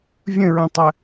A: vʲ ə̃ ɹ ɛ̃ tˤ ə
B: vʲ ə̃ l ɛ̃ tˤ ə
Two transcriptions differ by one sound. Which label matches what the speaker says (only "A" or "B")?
A